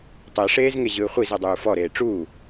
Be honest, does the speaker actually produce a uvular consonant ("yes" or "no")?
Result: yes